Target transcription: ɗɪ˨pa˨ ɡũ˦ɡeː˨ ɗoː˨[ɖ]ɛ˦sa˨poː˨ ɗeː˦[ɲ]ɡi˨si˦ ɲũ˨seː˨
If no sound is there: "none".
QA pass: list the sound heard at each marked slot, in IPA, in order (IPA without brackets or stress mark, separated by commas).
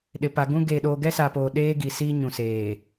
ɡ, none